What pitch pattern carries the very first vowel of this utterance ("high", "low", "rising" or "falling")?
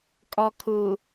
low